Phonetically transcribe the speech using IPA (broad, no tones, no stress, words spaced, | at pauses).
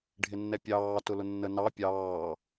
ɖʱɪnːɛpʲɑː tʊlʊnːə nɑ pʲɑː